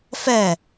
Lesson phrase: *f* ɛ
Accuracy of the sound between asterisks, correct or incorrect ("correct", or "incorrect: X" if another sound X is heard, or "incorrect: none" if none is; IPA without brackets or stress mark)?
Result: correct